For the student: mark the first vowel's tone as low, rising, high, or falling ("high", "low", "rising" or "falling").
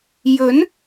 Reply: rising